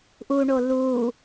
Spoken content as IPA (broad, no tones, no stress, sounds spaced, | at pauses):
ʔ u ɳ o l u